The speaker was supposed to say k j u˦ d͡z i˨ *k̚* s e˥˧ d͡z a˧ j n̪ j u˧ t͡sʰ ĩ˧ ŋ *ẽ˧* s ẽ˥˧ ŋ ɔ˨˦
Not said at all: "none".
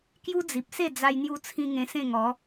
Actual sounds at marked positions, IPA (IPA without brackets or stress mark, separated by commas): p̚, ẽ˧